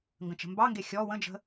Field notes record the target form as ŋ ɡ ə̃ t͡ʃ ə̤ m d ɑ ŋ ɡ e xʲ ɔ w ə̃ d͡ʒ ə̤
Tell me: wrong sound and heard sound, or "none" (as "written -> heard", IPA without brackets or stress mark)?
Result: d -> b